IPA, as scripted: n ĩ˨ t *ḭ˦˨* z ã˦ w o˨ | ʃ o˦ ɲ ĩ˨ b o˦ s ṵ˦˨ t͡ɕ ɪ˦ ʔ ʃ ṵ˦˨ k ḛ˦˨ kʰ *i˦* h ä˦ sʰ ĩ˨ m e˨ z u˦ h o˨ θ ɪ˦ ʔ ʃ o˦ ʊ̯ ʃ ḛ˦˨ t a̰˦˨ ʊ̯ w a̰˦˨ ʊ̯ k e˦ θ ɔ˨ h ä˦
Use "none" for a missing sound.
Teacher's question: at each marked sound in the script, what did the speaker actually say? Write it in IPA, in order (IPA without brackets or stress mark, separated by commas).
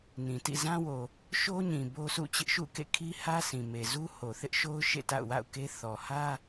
ḭ˦˨, i˦